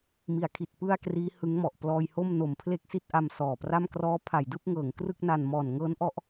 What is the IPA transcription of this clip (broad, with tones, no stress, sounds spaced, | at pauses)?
m i˩˦ a̯ kʰ i˨˩ t̚ p ɯ˥˩ a̯ k r iː˦˥ h ɯ˦˥ ŋ m ɔ˨˩ ʔ p l ɔː˧ j h o˥˩ m n o˨˩ m pʰ l e˥˩ k̚ s i˥˩ t̚ ʔ a˧ m s ɔː˨˩ p r a˥˩ m k r ɔː˦˥ pʰ a˩˦ j d ɯː˥˩ p̚ ŋ ɤː˩˦ ŋ k r ɯ˥˩ k̚ n a˨˩ n m ɔː˨˩ n ŋ ɤː˦˥ n ʔ ɔ˦˥ ʔ